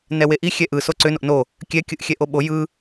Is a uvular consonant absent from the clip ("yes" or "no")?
yes